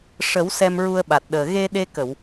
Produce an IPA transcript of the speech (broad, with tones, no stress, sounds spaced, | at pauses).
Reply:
ʂ ə˨˩˦ w s ɛ˧ m ɹ u˧ ə̯ ɓ a˨˩ t̚ ɗ əː˨˩ ɣ e˧ ɗ e˧ k ə˨˩˨ w